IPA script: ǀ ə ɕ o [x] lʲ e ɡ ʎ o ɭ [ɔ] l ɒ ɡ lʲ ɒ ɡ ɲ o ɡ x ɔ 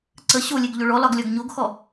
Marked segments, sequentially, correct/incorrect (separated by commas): incorrect, correct